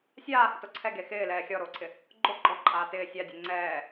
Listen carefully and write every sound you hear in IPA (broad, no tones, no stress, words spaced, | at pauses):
sʲaːhɪto ǀʰɛɡe xɪːlɛː xʲɔɾoːǀʰɪ | ɡ͡ǃo ɡ͡ǃɔǃʼaː tɪː sʲadʲe ŋ͡ǀɛː